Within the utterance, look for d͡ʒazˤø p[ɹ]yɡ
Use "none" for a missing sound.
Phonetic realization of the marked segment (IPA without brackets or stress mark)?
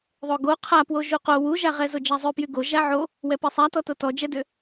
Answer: j